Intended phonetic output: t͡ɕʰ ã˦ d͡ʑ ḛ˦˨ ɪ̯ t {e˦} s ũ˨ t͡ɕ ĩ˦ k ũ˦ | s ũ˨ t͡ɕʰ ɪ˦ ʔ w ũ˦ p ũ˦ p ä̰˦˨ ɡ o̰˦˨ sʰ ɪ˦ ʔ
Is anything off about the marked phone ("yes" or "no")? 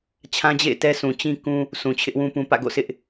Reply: yes